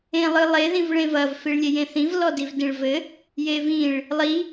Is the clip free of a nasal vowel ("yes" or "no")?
no